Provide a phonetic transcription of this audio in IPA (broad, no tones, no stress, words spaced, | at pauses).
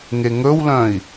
ŋeŋɵwlœ̃i̯